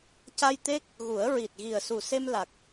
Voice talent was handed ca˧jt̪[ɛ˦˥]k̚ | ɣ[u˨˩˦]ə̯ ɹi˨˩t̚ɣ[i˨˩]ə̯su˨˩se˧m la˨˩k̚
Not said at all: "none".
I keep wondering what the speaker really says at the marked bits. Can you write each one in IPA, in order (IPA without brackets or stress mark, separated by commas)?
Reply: e˦˥, u˨˩˦, i˨˩